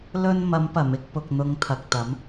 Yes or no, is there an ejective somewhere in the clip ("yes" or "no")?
no